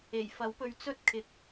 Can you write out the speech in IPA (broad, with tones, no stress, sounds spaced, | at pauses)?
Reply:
e˨˩ j f ɐ˨˥ w p ɵ˧ ɥ t͡s ɵ˥ t̚ kʰ ɪ˨ k̚